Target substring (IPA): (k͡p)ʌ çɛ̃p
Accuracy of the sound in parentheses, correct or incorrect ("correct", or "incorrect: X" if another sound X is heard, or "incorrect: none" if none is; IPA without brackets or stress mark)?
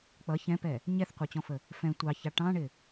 correct